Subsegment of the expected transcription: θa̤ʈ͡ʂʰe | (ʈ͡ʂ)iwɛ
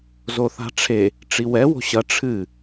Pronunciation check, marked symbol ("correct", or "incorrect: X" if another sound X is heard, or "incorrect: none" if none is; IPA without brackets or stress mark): correct